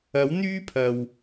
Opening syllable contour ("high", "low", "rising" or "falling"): rising